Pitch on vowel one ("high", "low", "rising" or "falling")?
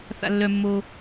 high